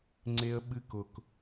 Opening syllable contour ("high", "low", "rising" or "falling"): high